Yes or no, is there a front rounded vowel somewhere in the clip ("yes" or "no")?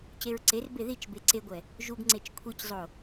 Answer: no